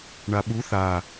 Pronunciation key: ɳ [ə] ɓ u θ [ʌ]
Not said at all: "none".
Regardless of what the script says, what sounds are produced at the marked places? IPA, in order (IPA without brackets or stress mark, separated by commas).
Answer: a, a